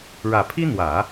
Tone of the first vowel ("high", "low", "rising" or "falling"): low